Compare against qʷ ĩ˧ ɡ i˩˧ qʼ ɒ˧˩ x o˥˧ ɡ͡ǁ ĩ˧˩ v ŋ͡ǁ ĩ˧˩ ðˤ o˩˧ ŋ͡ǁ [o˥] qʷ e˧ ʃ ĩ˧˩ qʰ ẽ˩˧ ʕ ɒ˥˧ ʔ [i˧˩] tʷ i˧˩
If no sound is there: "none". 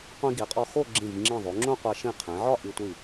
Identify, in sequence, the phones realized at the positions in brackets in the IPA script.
õ˥, i˧

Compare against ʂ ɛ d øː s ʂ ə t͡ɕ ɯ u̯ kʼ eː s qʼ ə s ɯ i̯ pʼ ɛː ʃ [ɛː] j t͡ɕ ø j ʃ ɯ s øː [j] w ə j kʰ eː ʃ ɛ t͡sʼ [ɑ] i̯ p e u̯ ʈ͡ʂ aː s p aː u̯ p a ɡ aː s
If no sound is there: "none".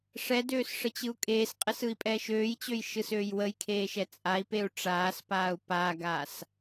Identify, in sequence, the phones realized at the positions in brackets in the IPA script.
øː, j, a

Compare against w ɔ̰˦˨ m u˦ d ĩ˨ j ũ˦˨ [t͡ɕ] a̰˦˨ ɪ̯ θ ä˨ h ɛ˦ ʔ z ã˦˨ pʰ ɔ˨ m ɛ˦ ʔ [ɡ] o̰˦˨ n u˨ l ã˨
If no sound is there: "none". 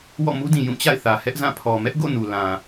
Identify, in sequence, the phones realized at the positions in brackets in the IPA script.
t͡ɕ, ɡ

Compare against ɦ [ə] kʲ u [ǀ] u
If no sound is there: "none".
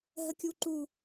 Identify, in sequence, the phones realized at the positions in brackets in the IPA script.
ə, ǃ

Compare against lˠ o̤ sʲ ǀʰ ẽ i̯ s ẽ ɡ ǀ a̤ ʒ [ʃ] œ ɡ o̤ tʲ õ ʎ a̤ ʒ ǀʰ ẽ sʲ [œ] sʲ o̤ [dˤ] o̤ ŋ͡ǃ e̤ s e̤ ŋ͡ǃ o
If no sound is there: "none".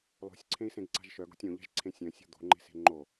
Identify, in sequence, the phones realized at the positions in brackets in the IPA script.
ʃ, œ̃, d̪

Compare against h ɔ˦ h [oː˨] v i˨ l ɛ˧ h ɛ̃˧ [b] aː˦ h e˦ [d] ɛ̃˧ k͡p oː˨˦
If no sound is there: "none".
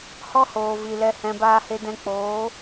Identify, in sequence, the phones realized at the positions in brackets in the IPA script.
oː˨, b, d

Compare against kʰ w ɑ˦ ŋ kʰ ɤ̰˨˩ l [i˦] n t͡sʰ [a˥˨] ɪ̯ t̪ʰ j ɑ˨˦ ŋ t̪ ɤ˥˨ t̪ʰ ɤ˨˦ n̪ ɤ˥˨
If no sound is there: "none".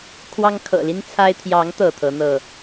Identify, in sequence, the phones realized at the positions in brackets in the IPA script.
i˦, a˦

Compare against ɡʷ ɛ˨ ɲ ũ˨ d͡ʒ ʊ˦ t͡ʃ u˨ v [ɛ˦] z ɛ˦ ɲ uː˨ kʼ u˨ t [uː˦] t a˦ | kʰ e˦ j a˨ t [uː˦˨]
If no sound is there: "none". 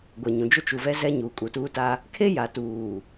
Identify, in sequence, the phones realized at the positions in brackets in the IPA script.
ɛ˦, uː˦, uː˨

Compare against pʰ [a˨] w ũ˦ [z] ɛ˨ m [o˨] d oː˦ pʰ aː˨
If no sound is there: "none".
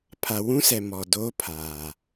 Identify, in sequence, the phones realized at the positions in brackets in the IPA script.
a˨, s, ɔ˨

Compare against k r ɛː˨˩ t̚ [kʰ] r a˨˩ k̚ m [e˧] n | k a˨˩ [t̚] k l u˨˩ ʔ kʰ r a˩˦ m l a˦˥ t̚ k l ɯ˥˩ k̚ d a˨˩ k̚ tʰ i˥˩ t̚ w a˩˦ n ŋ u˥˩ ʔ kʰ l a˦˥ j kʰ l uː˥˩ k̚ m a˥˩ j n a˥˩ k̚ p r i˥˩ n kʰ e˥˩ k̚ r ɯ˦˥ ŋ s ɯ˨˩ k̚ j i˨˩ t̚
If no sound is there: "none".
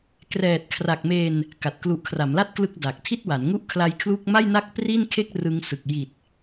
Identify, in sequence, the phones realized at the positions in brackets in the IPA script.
kʰ, eː˧, t̚

